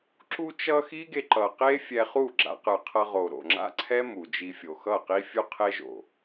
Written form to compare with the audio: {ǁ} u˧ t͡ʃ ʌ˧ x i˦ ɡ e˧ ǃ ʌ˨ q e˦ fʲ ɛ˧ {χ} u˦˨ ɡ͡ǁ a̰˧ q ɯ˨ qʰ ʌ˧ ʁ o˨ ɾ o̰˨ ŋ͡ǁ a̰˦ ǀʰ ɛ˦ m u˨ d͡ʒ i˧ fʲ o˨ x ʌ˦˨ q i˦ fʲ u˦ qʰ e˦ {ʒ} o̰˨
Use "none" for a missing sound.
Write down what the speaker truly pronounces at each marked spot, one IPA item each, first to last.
ǁ, χ, ʒ

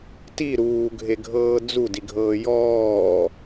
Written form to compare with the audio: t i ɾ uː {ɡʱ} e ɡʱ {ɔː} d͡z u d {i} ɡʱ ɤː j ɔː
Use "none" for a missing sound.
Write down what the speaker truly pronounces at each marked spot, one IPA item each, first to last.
ɡʱ, ɤː, i

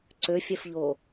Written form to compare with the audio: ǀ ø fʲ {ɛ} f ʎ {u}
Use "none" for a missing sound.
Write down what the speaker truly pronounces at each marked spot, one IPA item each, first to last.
ɛ, o

